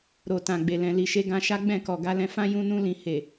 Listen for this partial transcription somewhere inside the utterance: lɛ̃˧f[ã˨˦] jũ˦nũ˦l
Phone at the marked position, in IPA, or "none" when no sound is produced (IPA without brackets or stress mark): ã˦